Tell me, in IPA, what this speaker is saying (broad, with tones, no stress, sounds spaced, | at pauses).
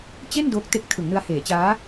t͡ɕ e˥˩ n d o˦˥ k̚ t e˦˥ k̚ tʰ ɯ˩˦ ŋ n ɯ˧ a̯ h eː˩˦ t͡ɕ aː˦˥